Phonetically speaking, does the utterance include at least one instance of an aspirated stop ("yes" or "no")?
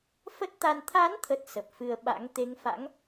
yes